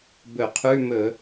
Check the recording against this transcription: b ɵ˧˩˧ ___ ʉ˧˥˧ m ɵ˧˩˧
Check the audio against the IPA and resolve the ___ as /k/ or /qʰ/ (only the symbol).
qʰ